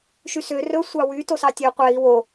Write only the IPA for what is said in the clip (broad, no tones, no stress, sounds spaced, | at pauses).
ʃ y s ø r ɵ sʷ ɑ w y t o s ɑ tʲ ø qʷ ɛ i̯ w o